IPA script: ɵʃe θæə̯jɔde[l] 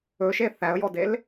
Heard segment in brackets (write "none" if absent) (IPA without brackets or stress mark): l